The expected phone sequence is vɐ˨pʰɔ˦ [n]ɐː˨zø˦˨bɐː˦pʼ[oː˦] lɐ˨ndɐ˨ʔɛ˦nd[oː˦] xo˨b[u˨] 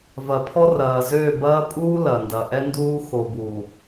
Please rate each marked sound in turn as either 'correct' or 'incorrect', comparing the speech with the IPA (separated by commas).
incorrect, incorrect, incorrect, correct